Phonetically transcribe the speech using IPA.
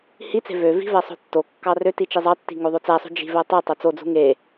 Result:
h i t͡s e̤ v ø v i̤ v æ sˤ o̤ tː o kː ɑ r ø t i t͡ʃ i zˤ ɑ tː i̤ ŋ o ðˤ o t͡s æ sˤ ṳ d͡ʒ i̤ v æ tˤ i tˤ o t͡s o d͡z ṳ ŋ e

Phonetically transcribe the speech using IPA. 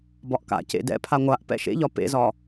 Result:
b ɒ ʔ k a̰ c ḛ d ɛ̰ pʰ a ŋʷ a ʔ p ɛ̰ ʃ ḛ ʎ ɒ p ḛ z ɒ

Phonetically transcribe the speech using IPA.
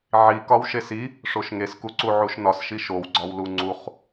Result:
ʕ i k ɒ w ʃ e s i | ʂ o ʃ ŋ e s k u ǀ u ʕ u ʃ n ɒ s ʃ i ʃ o w ɡ͡ǀ ɒ w l u ŋ͡ǀ u χ

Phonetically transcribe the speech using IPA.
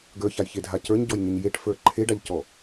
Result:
ɡ ə˞ ç a j ç e dʱ a c ə˞ ɲ ɟ ɔ j ɲ e ɲ j e ʈ f ə˞ ǃʰ e ɖ a ʎ c ɔ

